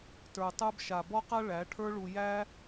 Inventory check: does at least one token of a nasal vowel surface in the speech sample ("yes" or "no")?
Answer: no